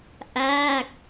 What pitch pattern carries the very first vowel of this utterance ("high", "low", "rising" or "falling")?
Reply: falling